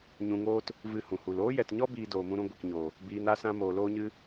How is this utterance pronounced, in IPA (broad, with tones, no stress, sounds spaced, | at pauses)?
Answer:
ɲ ũ˧ ŋ oː˦ t | v ɨ˦˨ h ũ˨ h u˨ l oː˦ j ɛ˨ t ɲ ɔ˦ b iː˧ d oː˨ m ũ˧ ɾ ũ˧ ɡʷ i˨ k ɲ oː˨ | b iː˧ n a˦ s ã˦ m oː˨ l oː˦ ɲ ɨ˦